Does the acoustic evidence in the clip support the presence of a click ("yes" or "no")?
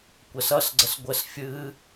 yes